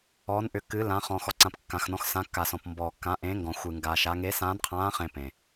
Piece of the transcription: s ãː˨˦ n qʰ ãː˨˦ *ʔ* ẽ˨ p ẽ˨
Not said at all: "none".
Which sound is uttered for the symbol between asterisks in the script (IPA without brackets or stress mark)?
χ